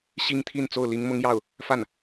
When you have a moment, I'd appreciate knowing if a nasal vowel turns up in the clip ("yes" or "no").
no